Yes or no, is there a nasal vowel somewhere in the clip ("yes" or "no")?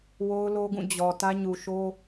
yes